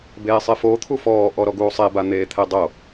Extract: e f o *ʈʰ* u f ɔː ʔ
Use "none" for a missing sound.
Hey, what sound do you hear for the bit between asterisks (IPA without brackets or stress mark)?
t̪ʰ